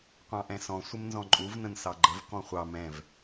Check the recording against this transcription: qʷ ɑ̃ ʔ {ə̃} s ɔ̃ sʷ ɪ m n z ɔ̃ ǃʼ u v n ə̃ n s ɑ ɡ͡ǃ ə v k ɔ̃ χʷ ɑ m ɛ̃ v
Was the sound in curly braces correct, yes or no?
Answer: no